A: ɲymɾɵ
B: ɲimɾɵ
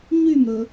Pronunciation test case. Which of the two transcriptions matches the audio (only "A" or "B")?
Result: A